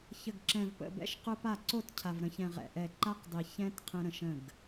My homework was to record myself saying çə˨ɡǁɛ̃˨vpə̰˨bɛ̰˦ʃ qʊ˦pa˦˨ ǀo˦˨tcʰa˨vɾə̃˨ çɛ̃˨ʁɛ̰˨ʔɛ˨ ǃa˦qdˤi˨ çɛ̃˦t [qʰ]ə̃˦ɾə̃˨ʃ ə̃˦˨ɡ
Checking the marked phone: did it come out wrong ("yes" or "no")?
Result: no